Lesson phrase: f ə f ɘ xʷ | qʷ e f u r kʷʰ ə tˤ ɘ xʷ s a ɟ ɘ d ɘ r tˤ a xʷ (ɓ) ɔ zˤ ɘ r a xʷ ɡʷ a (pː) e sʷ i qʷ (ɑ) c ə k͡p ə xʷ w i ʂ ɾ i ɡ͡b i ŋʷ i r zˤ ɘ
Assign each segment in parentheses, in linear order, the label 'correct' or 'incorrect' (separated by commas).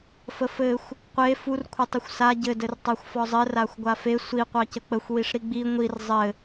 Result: incorrect, incorrect, correct